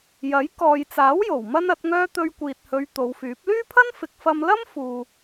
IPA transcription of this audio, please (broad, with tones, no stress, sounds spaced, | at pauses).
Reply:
j ɐ˨˥ j k ɔː˨ j t͡s aː˨˥ w j o˨˩ w m ɐ˥ n ɐ˨˥ t̚ ŋ œː˥ t̪ ɵ˧ ɥ kʷ iː˨ t̚ h ɵ˨˧ ɥ t̪ o˨˧ w f yː˨˥ p̚ l yː˥ pʰ ɐ˥ n f ɪ˨˥ k̚ f ɐ˧ m l ɐ˥ m f uː˨